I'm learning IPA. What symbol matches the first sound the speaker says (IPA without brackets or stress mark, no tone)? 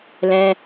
l